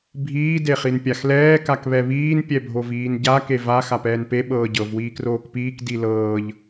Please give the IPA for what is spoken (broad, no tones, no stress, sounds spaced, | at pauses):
bʱ iː d e χ i n pʲ a x l ɛː k a k β ɛ β iː n pʲ ɛ bʱ o v iː n ɟ a k e v a x a p ɛː n p e ɓ ɤː ɟ ɤ v w iː k r oː k p iː k d i l ɤː ʎ